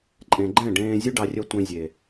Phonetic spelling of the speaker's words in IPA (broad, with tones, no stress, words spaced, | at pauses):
ǃʼẽ˨ɡ͡ǃɛ̃˦˨ ɖẽː˧zʲʉ˦ɖɑ˧ rʲœ˧ tʷẽ˧zʲe˨